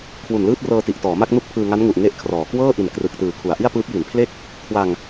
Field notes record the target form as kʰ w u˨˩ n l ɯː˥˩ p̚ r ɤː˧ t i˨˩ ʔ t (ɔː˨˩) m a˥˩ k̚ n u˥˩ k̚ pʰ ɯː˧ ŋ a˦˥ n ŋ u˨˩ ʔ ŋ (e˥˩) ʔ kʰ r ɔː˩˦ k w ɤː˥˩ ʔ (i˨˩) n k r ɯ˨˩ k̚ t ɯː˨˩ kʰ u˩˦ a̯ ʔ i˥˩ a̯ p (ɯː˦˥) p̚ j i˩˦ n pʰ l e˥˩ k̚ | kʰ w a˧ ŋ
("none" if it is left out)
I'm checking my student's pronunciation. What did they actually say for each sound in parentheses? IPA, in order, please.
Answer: ɔː˩˦, e˥˩, i˨˩, ɯː˦˥

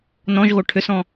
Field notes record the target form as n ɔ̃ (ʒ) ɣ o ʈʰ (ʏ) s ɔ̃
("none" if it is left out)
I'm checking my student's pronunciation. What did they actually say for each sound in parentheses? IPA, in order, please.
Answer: ʒ, ʏ

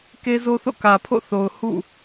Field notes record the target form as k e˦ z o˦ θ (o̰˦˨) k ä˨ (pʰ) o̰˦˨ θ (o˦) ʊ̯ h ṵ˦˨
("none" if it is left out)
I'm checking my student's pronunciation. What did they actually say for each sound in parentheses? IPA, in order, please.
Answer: o̰˦˨, pʰ, o˨

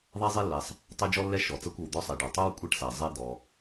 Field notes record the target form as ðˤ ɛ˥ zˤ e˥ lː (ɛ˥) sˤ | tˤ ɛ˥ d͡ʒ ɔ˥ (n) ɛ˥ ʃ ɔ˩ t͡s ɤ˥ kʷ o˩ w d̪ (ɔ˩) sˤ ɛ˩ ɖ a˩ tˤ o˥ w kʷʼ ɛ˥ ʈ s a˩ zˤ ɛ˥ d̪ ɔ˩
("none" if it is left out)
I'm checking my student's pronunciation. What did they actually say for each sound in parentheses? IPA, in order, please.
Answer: ɛ˩, lː, ɔ˥

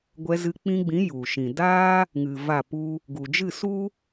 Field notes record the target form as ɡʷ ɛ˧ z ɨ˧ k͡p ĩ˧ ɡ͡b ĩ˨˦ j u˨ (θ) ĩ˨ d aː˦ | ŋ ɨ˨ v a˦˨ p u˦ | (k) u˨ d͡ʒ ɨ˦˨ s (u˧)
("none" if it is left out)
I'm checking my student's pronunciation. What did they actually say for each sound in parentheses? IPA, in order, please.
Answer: ʃ, ɡ, u˦

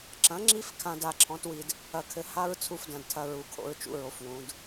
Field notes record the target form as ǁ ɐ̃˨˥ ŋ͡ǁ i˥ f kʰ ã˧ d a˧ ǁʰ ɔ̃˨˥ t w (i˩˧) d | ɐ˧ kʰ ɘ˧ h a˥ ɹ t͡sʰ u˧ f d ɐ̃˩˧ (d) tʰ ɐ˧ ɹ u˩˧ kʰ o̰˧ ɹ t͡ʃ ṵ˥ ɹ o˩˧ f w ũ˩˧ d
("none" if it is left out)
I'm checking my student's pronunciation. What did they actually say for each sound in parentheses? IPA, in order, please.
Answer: i˧, d

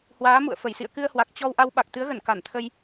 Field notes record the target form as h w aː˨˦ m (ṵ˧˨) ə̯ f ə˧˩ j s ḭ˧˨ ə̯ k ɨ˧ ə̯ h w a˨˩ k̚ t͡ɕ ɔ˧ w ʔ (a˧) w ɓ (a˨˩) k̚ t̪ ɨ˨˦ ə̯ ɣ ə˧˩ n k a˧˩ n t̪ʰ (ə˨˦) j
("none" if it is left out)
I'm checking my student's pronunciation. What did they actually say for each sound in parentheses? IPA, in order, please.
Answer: ṵ˧˨, a˧, a˨˩, ə˧

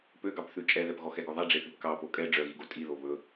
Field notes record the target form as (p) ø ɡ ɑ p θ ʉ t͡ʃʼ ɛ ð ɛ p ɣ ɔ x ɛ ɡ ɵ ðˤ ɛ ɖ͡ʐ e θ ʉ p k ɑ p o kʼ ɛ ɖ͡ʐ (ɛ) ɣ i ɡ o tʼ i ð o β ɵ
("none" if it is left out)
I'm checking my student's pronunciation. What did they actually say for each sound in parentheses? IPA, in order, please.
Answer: p, œ

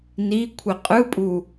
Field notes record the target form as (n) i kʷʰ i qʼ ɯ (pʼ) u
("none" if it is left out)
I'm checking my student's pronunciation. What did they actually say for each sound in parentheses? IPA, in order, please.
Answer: n, pʼ

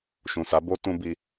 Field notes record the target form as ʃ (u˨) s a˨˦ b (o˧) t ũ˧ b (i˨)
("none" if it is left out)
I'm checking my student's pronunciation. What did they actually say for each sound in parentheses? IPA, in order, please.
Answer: ũ˨, o˦, i˦

